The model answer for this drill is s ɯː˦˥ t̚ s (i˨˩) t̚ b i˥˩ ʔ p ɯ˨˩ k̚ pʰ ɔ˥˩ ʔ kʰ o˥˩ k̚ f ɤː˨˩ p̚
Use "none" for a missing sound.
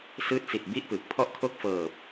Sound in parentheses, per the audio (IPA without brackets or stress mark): i˨˩